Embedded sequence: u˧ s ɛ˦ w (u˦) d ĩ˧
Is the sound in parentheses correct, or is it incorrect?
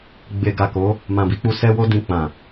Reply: incorrect